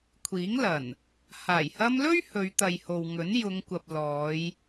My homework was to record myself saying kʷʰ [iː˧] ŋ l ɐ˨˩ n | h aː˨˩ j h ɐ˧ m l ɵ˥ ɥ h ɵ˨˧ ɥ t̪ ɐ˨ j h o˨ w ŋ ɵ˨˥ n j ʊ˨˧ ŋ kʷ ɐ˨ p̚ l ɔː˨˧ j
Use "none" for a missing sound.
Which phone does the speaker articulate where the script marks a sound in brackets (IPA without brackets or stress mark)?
iː˨˥